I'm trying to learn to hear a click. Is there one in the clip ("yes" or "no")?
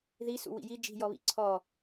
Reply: yes